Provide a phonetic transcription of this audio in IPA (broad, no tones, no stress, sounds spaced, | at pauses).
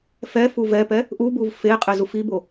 f ɛ f u v ɛ p ɛ | ʔ u b u v f e qʼ e z u f i b o